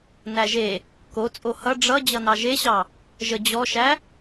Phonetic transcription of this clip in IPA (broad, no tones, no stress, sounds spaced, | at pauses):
n æ ʒ e | k o t͡sʼ o h ʌ ɖ͡ʐ ʌ d͡ʑ ʌ n ɑ ʒ e ɕ ɑ | ʒ ə d͡ʑ ɔ ʃ æ